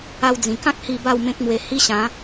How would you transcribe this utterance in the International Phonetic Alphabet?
a˧ w d͡z ĩ˨˩ k ã˦ k̚ h i˧ b a˥˧ w m ẽ˦ k̚ m w e˧ h i˦ ɕ ã˨˦

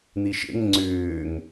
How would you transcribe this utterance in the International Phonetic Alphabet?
n̪ i ʃ ḛ ŋ ŋ͡ǀ ʏː ŋ

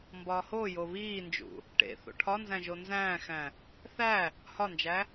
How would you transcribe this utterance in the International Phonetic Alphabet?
m b ɒː h o j o β iː n d͡ʒ ṵ | ʈ ḛ θ o̰ ʈʰ ɒ n z æ̃ ʒ o n z æ̃ː x æ̃ | θ æ | h ɒ n d͡ʒ æ

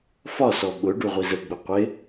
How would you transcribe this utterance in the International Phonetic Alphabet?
f ɒ s ɔ ɓ ʊ ɖ u ʁʷ i z ə ɡ͡b ʊ qʷ ɪ

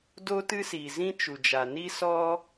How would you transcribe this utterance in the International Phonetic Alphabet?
d o˦ t ɨ˦ s iː˨ z ĩ˦ t͡ʃ u˨ d͡ʒ a˨ n i˦ s ɔ˦

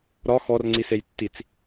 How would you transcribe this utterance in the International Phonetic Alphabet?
ɾ ɒ x ɔ r ŋ͡ǀ i s e j tː i t͡s

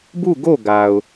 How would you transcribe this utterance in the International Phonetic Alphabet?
b u˦˨ ɡ o˦˨ ɡ a˨ ʊ̯

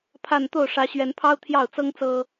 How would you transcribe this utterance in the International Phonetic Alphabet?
pʰ a˥˧ n t̪ o˥˩ ʊ̯ ʂ ä˧˥ ɕ ɥ ɛ˧˥ n pʰ ɑ˥ ʊ̯ t̪ʰ j ɑ˥˩ ʊ̯ t͡s ɤ˥ ŋ t͡s ɤ˥

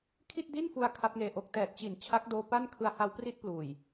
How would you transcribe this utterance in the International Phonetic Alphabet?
kʰ i˥˩ t̚ d i˥˩ n f u˧ a̯ kʰ a˦˥ p̚ ŋ eː˧ ʔ o˦˥ k̚ t ɛː˨˩ t̚ t͡ɕ i˨˩ n t͡ɕʰ a˦˥ k̚ d oː˧ p a˥˩ n kʰ ɯ˧ a̯ h a˦˥ w p r i˥˩ t̚ p l uː˨˩ j

